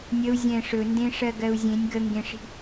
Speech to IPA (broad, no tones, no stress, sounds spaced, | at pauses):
nʲ ə u̯ zʲ ɛ̃ ʂ ɵ n d ẽ ʂ ɜ ɡ ɜ u̯ zʲ ẽ nʲ ɡ ə ŋ ɡ ẽ ʂ i̤